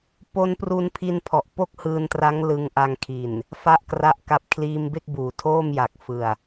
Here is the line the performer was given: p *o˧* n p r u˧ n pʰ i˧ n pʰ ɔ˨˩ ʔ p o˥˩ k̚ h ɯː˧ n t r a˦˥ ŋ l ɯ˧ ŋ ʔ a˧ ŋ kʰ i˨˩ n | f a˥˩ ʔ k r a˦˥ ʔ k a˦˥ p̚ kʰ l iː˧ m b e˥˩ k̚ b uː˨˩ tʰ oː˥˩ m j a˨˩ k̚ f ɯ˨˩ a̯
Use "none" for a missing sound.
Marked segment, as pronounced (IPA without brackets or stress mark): o˧